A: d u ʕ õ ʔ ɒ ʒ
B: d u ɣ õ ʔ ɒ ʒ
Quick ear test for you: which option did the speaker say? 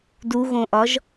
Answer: B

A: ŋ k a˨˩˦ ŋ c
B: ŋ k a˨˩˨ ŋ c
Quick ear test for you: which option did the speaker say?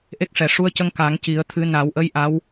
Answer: A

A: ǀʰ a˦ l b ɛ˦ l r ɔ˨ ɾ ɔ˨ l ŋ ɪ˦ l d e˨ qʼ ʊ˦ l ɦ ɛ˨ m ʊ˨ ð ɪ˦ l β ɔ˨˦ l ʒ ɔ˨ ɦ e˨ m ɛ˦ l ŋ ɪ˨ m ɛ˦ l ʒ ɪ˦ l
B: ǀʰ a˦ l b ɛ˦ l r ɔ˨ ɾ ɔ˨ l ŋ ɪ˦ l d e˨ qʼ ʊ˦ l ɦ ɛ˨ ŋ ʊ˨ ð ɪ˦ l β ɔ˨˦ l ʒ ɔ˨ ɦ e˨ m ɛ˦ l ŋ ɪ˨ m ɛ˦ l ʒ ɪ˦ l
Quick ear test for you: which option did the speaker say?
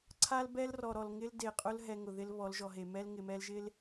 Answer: B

